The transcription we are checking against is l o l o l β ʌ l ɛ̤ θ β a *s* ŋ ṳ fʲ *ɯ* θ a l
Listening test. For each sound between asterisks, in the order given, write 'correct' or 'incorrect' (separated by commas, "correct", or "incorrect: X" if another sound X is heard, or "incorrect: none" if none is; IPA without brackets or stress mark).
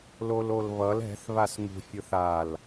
correct, correct